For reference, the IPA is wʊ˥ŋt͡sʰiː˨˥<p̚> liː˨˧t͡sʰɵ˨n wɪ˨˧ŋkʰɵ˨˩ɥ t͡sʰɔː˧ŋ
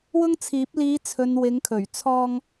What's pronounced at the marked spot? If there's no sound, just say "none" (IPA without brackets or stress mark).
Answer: p̚